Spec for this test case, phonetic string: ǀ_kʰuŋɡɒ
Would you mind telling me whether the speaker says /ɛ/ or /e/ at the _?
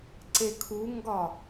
e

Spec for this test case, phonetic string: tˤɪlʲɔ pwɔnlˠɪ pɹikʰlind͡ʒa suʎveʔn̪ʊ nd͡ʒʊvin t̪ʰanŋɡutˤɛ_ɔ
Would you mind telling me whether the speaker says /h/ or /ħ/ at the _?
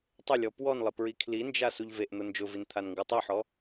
ħ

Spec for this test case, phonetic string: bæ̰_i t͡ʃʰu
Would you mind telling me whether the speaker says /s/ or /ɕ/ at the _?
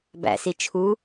s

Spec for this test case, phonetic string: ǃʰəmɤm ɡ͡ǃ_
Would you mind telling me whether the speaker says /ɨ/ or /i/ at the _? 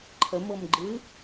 ɨ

